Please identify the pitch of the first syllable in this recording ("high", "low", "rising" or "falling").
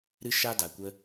high